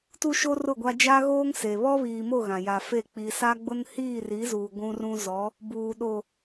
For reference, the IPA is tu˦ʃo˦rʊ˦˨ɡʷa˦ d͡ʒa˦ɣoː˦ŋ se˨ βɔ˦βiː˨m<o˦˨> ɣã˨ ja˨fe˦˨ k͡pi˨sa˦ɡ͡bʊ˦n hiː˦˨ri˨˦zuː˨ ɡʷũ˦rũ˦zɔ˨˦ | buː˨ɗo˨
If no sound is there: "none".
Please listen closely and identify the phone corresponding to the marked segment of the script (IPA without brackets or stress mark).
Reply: o˦˨